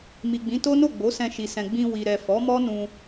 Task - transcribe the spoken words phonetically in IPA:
mi˨ɡ͡bĩ˨˦to˦no˦˨ ɡ͡bo˨˦sɛ̃˧ʃi˨sɛ̃˨ ɡ͡bĩ˧wi˨ɾɛ˨ fɔ˨˦mɔ˦nũ˧

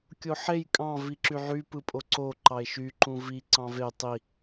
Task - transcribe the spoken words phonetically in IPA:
kʲoħej kʼɑ̃ viǁyʕy pɯpʼoǀo ǃɑe̯ʃy ǃũvi ǀɑ̃ve tˤi

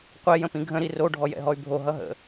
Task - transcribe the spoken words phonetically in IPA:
qʷɛ jə̃pĩɡʱə̃ ɾiro ɖʱɔjɛ̰ɦɔy̯bʱo ɦʌɦə̰

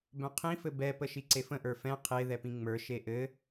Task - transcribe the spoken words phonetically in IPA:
bœ̃qʰĩfɘ bɛpə ʃiǀefə̃ʔə˞ fɛ̃ qʰe ðɛpĩŋ͡mə˞ ʃeʔɘ

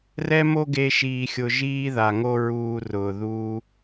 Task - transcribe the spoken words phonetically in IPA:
rɛ˦mo˦ɡe˧ ʃiː˧xʲʊ˧ ʒiː˦ða˨ ŋo˦ ɹuː˧rʊː˨ ðuː˦

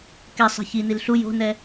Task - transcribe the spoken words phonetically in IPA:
kɛ sˤi̤çinil ɬu jo̤nɛ

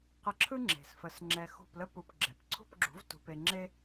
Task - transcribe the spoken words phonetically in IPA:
qə˧ǁʰɯ˥ŋ͡ǁe̤˩sfə˩˥s ŋ͡ǁɛ˧xṳ˥˩plə˥pu˧p ɡ͡ǁɛ˩pǀʰṳ˥˩pɡ͡ǁṳ˩˥v tṳ˧ pe˧ŋ͡ǁe˥

